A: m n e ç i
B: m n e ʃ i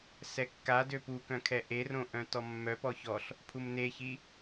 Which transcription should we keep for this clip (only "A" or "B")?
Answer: A